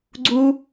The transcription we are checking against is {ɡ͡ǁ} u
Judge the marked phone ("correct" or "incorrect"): incorrect